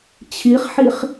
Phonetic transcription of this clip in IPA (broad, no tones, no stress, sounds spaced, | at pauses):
t͡ɕʰ i χ ħ i χ